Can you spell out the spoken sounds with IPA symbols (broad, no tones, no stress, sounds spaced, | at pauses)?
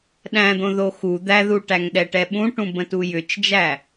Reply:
ɗ æ̃ d̪ õ ð o x u d̪ æ ð u ʈ æ ŋ ɗ ɛ ʈ ɛ ɓ ũ ʈ ũ b ə̃ t u j ʏ t͡ʃ d͡ʒ æ